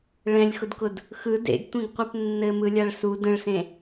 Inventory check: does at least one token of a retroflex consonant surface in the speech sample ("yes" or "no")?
yes